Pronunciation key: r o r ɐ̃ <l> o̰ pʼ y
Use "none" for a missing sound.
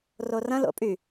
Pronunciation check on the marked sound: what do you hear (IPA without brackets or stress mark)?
l